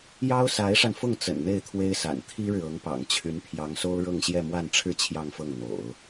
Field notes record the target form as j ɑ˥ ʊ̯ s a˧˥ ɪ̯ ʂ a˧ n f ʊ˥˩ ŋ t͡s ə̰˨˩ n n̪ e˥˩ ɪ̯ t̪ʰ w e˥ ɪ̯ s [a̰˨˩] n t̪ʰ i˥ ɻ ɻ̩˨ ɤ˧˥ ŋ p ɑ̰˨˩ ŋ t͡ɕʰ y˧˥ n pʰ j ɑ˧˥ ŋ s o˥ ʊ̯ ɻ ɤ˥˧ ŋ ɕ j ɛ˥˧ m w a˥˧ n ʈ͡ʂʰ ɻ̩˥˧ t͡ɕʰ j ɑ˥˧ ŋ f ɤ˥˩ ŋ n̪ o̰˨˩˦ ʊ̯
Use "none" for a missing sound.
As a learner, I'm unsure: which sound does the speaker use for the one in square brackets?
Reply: a̰˨˩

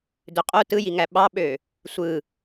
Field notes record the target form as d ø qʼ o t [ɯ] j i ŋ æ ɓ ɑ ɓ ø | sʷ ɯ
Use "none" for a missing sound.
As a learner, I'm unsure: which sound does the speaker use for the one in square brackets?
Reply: ɯ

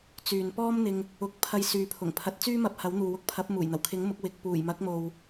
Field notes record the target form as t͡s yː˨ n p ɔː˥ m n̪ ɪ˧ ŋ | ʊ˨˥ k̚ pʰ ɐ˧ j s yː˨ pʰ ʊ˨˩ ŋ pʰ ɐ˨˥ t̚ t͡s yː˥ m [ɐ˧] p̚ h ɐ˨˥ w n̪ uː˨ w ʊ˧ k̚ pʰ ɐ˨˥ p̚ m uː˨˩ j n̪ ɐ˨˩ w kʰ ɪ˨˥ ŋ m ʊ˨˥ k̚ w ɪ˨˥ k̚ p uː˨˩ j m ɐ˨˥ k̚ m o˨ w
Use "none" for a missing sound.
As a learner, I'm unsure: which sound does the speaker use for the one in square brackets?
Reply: ɐ˧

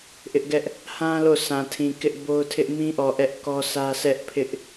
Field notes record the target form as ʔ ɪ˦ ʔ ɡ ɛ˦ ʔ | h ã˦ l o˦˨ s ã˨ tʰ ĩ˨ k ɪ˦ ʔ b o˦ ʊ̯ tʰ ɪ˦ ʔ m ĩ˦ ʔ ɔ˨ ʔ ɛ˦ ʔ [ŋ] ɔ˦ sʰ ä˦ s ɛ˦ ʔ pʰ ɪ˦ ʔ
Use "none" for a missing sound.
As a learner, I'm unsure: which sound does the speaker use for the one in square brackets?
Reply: k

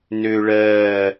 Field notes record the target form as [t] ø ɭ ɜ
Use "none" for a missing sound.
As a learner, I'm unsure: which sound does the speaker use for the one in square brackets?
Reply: n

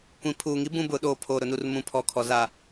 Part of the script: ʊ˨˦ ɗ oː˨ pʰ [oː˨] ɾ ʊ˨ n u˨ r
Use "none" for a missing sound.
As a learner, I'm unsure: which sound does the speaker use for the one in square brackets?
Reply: oː˨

